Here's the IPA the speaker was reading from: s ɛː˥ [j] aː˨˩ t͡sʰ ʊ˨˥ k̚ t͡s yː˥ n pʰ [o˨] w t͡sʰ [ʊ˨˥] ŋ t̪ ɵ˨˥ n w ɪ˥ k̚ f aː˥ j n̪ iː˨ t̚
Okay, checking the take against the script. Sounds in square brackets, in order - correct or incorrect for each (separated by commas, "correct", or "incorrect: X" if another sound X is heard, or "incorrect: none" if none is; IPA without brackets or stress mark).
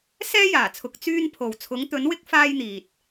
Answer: correct, correct, correct